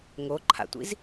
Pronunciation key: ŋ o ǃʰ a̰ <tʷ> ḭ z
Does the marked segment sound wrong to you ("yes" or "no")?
no